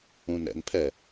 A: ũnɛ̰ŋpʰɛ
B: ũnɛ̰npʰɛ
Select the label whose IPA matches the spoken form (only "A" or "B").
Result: B